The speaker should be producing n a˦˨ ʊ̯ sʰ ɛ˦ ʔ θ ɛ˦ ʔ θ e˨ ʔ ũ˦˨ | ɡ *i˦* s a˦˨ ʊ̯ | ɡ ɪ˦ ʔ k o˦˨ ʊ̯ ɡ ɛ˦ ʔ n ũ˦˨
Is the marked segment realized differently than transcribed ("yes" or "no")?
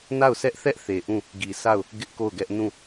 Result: yes